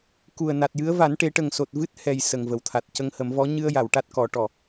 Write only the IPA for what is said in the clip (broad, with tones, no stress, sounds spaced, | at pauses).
k u˨˩ ə̯ n a˨˩ t̚ j ɨ˧˥ ə̯ v a˨˩˦ n ʈ e˨˩˦ ʈ ə˨˩ ŋ s o˨˩ t̚ v ɨ˦˥ t̚ h ɛ˨˩ j s ə˨˩ ŋ v ə˨˩˨ w t̪ʰ a˨˩ t̚ c ə˧ ŋ h ə˨˩˦ m v ɔ˧˥ ɲ ɨ˧ ə̯ j a˨˩˨ w ʈ a˦˥ t̚ k ɔ˨˩˦ ʈ ɔ˨˩